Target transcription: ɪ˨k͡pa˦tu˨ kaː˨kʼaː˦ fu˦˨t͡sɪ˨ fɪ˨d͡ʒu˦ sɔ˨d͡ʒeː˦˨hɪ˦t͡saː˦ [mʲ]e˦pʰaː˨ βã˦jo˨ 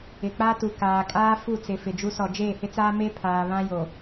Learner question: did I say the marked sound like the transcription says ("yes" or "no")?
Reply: no